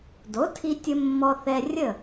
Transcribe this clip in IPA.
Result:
d o˩˥ tʰ i˧ tʲ ə˧ mː ɔ˧ θ ɛ˧ rʲ ə˥˩

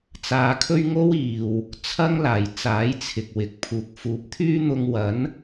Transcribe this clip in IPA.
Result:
t͡s aː˧ kʰ ɵ˥ ɥ ŋ o˥ w iː˨ w | t͡sʰ ɐ˥ ŋ l aː˨˩ j t͡s aː˨˥ j t͡sʰ ɪ˨ k̚ w ɪ˨ k̚ pʰ uː˧ k̚ f uː˨˥ p̚ t̪ʰ yː˥ n̪ ʊ˧ ŋ w ɐ˨˥ n

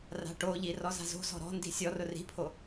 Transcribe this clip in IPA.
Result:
r a̤ ʈ o ʎ i r ɔ z a̤ z o̤ z ɔ̤ ɾ ɔ̤ n d i̤ sʲ ɔ r ʊ r i̤ pʰ o

